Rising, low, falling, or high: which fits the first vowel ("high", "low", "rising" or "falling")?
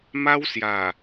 high